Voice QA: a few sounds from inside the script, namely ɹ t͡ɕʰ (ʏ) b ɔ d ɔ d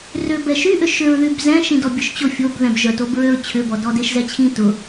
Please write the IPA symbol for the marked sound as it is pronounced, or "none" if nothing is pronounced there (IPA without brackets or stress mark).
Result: ʏ